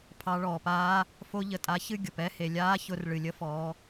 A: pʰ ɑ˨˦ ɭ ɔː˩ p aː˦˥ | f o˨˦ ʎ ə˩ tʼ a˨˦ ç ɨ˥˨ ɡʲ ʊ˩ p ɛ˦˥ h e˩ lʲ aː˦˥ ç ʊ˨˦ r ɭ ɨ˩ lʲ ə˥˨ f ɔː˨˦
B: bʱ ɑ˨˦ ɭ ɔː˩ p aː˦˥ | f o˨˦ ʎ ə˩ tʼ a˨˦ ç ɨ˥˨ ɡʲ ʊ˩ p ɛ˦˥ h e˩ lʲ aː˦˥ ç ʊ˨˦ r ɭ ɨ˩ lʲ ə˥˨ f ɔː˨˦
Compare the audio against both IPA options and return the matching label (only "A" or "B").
A